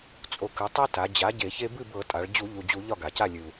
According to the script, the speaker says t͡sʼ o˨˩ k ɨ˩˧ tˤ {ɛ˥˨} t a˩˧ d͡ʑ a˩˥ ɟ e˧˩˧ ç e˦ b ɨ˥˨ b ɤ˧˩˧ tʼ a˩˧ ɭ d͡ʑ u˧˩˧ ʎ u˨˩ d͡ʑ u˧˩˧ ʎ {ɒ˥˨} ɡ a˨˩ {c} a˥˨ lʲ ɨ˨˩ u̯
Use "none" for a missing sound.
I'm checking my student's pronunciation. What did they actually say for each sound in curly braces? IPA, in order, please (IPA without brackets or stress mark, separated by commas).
ɛ˦, ɒ˥˨, c